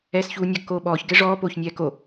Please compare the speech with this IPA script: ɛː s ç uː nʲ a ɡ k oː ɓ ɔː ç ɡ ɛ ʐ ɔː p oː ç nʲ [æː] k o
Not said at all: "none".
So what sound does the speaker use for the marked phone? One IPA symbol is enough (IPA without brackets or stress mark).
ɛː